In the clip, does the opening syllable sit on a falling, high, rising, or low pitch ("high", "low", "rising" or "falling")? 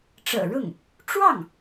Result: low